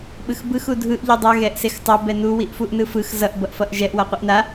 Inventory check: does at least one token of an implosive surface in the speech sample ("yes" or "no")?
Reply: yes